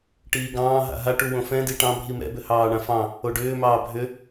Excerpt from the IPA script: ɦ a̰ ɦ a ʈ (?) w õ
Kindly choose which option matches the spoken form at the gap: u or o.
u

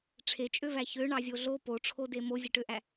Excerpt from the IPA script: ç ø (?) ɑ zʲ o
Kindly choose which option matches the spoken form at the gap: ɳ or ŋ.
ɳ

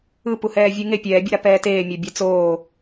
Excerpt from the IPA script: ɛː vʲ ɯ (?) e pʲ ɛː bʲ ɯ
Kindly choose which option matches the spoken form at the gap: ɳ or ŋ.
ŋ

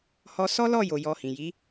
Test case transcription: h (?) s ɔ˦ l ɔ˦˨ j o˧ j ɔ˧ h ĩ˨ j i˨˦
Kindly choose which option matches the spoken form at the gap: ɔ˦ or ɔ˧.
ɔ˧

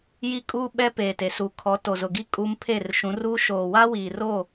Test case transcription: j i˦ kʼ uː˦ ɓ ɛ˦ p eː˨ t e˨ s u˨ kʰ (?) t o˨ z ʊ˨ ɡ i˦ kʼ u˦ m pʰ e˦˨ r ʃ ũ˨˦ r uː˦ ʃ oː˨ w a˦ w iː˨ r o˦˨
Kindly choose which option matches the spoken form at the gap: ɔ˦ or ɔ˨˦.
ɔ˨˦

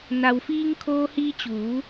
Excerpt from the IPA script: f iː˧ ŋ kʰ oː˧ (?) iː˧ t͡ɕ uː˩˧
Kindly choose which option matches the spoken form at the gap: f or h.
h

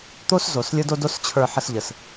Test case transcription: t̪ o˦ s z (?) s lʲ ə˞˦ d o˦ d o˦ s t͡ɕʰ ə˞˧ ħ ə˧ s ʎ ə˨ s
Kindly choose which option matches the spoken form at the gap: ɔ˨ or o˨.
o˨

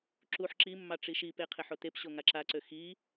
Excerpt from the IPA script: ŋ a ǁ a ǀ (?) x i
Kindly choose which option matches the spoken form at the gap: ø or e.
ø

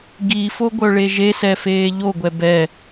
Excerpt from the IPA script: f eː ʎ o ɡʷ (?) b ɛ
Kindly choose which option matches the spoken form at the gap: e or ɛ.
ɛ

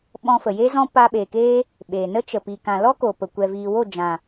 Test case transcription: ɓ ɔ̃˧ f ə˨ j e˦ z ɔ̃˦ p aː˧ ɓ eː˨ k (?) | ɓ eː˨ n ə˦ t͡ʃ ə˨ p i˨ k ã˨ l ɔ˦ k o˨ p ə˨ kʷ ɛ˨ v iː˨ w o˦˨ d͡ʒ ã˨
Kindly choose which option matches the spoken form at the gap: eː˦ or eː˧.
eː˦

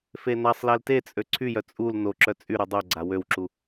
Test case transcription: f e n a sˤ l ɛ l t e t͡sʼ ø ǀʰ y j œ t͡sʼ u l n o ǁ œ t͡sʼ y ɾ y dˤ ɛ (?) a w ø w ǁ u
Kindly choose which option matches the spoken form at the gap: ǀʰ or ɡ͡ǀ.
ɡ͡ǀ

